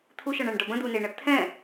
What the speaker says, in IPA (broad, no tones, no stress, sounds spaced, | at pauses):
t̪ʰ u ʃ ɒ ɳ ɛ̃ ɳ ɖ ɒ b ə̃ d̪ u n e ɳ ə t̪ʰ ɛ̃